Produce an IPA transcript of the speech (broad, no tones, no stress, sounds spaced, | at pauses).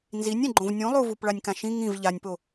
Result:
n z i nʲ ɛ̃ ɡ͡ǃ õ v nʲ ũ lˠ u v u p ɭ a nʲ k ã ʃ ĩ ŋ ĩ v ʎ a nʲ p o